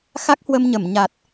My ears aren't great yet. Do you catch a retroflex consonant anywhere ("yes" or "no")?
no